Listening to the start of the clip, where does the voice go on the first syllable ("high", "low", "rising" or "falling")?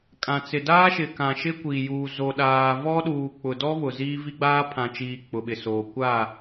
low